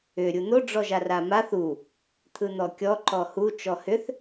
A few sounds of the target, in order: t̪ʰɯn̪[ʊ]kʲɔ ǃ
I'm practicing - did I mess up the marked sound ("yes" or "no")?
yes